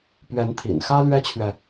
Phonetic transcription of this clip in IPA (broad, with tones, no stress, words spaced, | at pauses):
pɥɛ˧˥nt̪ʰḭ˨˩n xä˥ lɥɛ˥t͡ɕʰɥɛ˨